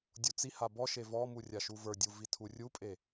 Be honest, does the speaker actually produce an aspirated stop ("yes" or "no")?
yes